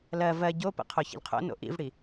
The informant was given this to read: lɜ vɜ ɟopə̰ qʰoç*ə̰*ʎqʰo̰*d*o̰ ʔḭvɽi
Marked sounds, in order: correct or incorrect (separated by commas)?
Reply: correct, incorrect